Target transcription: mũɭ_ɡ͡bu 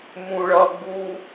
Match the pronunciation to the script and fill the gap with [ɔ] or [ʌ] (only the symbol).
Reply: ʌ